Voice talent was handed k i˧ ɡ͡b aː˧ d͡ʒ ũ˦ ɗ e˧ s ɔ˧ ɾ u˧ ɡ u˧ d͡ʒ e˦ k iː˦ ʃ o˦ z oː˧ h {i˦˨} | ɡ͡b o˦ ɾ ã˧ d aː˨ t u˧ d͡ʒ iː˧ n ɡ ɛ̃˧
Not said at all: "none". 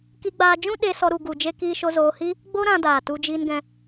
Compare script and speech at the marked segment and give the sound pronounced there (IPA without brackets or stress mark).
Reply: i˦